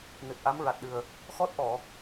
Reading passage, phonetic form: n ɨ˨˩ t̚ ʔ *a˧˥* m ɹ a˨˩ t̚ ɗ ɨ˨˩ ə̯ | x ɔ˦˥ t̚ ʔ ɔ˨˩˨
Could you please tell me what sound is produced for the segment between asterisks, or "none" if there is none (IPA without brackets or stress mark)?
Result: a˧˥